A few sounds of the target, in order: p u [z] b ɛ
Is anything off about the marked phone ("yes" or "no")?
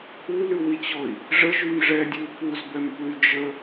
no